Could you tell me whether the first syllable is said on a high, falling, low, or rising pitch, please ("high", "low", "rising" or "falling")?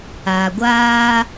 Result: low